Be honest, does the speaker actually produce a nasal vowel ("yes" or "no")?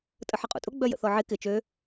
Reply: no